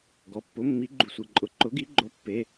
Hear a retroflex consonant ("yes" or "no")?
no